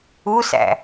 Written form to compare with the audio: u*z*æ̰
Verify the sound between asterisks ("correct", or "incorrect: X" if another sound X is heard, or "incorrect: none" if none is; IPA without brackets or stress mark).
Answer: incorrect: s